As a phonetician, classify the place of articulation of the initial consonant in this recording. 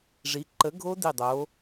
retroflex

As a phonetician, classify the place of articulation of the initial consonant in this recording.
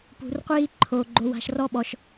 labial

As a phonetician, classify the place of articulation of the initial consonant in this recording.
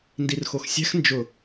alveolar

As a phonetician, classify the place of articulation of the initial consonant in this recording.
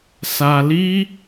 alveolar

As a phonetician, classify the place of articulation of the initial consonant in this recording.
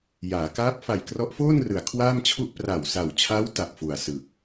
palatal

